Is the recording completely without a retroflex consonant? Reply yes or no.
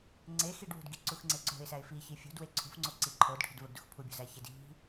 no